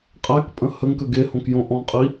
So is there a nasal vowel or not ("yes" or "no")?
yes